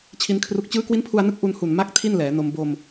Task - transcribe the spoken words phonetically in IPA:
t͡ɕʰ i˦˥ n kʰ r u˦˥ k̚ t͡ɕ ɯː˦˥ k w i˦˥ n pʰ u˧ a̯ n ɯ˦˥ k̚ ʔ u˧ n h u˨˩ n m a˥˩ k̚ tʰ i˥˩ n l ɛː˩˦ n o˧ m b o˧ m

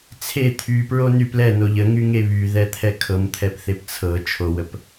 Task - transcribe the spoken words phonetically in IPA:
t͡sʰ e t̪ʰ y p ɹ o n y p l ɛ n o ʎ ə ŋ y ŋ e β y ð ɛ t̪ʰ ɛ kʰ ɤ m t̪ʰ ɛ p θ e p t͡sʰ ɤ t͡ʃʰ o w ə p

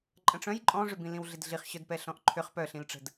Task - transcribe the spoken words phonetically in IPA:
ǃʼ ə̃ ʈ͡ʂ œ̃ j ǃʼ ɔ̃ ʐ ʏ b ĩ l ĩ w ɮ ɪ d ɮ i χ ɕ œ d p ɛ ɬ ɔ̃ ʔ ǃʰ ʏ χ p œ ɬ ĩ l ʈ͡ʂ ə̤ d

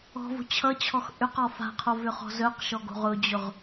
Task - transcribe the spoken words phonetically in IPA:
ɔ̤ v o̤ t͡ɕʰ ʌ t͡ɕʰ ɔ x ʔ ʏ q ɔ f a̤ qʰ o v ʏ χ ɔ̤ z œ q ʃ ɔ ɡ o̤ ʁ ʊ d͡ʑ ʊ ʁ

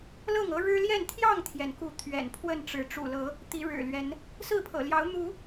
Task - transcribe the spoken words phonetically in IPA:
l ɤ˥˨ ŋ ɤ˦ ɻ ɻ̩˦ l j ɛ˥˨ n t̪ʰ j ɑ˥˨ ŋ t̪ʰ j ɛ˩ n k u˨˦ t̪ʰ ɥ ɛ̰˨˩ n pʰ w ə˥˨ n ʈ͡ʂ ɻ̩˨˦ ʈ͡ʂ ṵ˨˩ l ɤ˨˦ | t̪ i˨˦ ɻ ɻ̩˨˩ l ɥ ɛ˨˦ n | s ɹ̩˥˨ pʰ ɤ̰˨˩ l j ɑ˨˦ ʊ̯ n̪ u˨˦

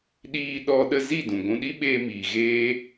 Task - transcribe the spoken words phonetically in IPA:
ɗ iː˧ ɗ ɔ˧ ɗ ə˧ z i˦˨ d ũ˨ ɡʷ ũ˧ ɗ i˦ ɓ eː˧ m iː˨ ɣ eː˦

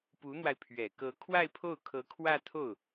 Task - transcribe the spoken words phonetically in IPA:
p u˧˥ n̪ w a˧ ɪ̯ pʰ ɥ ɛ˨˩ k ɤ˧˥ kʰ w a˥˧ ɪ̯ pʰ o˥˩ ʊ̯ kʰ ɤ˧˥ kʰ w ä˥˧ t̪ʰ o˥˩ ʊ̯

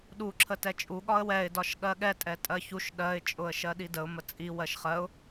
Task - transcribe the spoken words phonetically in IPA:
ɗ u ǁʰ ə t ɛ t͡ʃʼ u ɠ ɒ ə̯ w ɛ ɪ̯ d ɒ ʃ ɠ ɜ ɠ ɛ tʼ ɛ tʼ ɜ ç u ʃ ɗ ɜ ɪ̯ t͡ʃʼ ʊ ə̯ ʃ ɜ ɗ i d ə ʊ̯ m ə t͡sʼ i w ɜ ʃ χ ɜ ʊ̯

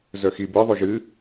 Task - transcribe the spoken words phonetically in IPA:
z œ x i b ɯ ðˤ u ʒ ɨ

